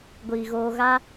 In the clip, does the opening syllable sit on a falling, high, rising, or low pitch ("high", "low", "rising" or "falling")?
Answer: low